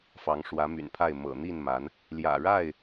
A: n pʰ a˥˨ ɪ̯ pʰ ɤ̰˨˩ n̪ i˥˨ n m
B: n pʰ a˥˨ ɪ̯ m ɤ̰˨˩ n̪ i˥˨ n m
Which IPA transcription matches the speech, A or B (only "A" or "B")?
B